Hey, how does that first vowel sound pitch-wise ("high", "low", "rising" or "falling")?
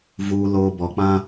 high